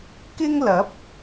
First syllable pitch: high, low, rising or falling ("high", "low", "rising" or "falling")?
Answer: high